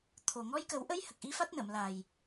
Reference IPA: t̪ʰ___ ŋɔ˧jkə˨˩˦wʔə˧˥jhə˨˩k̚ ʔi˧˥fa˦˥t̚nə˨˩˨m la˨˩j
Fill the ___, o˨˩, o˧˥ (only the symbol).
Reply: o˨˩